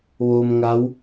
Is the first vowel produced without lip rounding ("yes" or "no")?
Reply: no